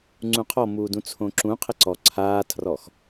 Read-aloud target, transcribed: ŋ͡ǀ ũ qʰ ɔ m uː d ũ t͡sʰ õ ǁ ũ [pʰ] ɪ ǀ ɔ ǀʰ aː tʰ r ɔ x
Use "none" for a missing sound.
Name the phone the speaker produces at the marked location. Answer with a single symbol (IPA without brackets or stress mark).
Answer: qʰ